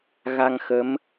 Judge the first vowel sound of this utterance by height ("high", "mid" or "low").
low